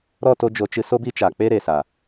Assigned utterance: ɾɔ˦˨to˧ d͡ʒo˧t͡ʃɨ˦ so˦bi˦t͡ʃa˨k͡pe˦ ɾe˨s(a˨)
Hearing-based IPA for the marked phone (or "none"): a˨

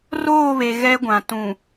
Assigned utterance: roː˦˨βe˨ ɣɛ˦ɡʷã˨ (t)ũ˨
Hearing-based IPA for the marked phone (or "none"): t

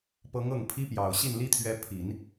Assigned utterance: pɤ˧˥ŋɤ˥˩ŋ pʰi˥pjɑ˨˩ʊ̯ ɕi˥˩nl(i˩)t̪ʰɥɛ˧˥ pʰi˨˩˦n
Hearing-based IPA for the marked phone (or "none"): i˥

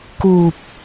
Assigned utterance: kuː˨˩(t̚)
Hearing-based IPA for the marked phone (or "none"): p̚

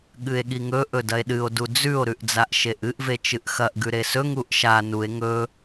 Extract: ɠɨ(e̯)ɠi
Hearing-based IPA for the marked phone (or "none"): e̯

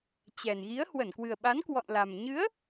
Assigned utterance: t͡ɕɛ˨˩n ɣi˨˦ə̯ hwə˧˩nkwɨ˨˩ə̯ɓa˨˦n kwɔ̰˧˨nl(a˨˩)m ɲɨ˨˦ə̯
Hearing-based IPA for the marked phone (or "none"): a˨˩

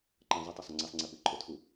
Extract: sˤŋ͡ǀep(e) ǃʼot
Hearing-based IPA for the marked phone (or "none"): ɨ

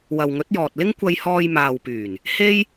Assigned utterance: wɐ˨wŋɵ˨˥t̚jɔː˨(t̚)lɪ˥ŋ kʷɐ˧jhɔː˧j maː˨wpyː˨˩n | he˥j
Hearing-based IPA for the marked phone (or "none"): t̚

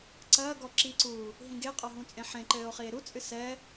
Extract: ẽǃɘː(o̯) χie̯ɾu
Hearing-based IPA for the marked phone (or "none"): o̯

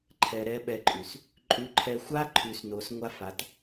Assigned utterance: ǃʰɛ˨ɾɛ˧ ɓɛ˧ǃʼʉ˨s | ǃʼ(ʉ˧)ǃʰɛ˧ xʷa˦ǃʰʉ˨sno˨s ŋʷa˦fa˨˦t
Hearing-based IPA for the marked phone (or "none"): ʉ˧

